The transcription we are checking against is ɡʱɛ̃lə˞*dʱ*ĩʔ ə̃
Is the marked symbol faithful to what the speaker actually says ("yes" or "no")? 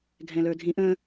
yes